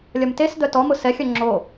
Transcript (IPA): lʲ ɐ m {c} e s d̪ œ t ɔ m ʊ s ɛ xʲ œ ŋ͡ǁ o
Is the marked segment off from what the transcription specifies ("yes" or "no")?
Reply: yes